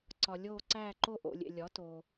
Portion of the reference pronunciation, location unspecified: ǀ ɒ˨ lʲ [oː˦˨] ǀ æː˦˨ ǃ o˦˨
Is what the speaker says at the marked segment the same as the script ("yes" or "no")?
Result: yes